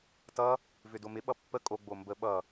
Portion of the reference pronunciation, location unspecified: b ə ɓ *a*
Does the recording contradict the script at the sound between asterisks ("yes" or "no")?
yes